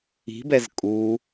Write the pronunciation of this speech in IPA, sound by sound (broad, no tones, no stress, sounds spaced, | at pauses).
i̤ b ɛ z kʼ u